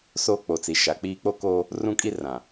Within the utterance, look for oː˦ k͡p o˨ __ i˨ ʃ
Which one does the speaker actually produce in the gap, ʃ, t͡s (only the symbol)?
t͡s